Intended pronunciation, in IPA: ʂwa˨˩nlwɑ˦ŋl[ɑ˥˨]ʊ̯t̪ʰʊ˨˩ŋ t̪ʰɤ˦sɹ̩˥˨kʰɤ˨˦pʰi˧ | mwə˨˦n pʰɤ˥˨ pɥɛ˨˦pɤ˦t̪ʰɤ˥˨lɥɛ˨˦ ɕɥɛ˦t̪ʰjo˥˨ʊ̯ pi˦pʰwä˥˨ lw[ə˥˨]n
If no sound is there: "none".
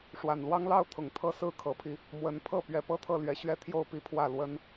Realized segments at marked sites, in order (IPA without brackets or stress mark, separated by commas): ɑ˥˨, ə˦